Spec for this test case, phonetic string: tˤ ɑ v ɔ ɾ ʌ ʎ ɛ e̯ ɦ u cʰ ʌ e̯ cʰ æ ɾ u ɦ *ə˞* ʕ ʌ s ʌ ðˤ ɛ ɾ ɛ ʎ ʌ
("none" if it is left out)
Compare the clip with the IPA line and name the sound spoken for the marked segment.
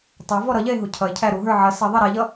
ə˞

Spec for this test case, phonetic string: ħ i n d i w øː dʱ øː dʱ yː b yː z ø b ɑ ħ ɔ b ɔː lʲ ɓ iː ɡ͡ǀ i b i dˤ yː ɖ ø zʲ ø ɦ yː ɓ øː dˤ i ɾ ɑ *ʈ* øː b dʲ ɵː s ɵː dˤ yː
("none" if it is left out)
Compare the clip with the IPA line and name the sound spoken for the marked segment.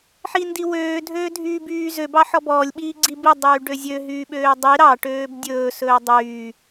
ʈ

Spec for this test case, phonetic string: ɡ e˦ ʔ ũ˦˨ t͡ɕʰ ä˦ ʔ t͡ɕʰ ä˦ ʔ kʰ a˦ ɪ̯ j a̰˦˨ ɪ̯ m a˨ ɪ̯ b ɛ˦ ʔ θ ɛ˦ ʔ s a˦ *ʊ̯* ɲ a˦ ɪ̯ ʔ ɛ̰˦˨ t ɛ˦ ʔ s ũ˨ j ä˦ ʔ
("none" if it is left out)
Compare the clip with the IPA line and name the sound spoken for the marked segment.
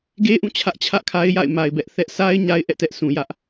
ɪ̯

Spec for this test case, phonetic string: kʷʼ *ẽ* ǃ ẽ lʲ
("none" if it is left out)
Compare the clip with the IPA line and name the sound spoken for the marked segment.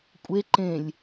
e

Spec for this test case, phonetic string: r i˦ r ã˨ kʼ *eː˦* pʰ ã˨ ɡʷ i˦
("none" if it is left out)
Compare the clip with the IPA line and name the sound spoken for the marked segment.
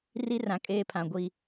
eː˦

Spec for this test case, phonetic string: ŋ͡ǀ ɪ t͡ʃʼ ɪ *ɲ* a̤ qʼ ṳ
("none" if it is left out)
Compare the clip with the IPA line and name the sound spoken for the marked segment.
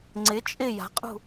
j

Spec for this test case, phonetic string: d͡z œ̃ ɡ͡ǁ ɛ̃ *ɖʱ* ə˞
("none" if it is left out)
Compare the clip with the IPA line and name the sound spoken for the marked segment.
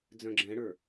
ɽ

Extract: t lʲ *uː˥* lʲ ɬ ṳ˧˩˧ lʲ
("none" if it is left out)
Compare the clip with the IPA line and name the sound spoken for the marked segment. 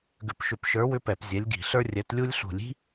u˥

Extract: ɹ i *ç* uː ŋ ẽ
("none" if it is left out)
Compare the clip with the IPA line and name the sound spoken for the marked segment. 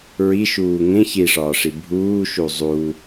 ʃ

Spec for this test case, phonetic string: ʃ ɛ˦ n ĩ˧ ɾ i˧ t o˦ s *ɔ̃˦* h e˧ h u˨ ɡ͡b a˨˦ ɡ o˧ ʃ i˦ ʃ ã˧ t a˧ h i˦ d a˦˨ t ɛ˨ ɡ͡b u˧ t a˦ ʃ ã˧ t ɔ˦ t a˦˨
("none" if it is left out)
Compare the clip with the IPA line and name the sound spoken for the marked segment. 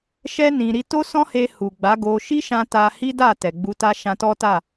ɔ̃˦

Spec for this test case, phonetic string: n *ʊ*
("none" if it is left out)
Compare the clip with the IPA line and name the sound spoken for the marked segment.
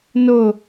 ʊ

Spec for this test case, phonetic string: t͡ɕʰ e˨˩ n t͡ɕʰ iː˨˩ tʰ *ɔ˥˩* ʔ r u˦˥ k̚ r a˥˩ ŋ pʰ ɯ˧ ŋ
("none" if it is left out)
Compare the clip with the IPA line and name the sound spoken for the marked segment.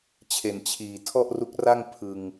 ɔ˥˩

